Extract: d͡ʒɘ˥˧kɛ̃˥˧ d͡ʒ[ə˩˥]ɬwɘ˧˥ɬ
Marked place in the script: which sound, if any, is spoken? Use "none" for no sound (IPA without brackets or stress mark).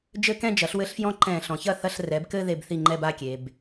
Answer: ɐ˩˥